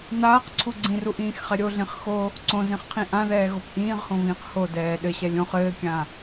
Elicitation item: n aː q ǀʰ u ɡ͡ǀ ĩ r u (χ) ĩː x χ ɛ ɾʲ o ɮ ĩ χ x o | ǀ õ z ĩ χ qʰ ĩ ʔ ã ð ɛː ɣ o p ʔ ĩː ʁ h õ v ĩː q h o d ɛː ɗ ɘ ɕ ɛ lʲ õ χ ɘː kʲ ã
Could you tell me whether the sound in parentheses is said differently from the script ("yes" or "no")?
yes